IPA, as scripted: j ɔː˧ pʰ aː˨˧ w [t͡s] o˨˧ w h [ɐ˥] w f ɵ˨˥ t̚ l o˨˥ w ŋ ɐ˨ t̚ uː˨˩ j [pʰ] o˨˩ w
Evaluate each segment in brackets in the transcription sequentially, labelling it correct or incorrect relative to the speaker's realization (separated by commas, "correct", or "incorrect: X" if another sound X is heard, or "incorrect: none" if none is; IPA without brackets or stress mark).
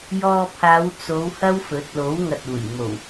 correct, correct, incorrect: m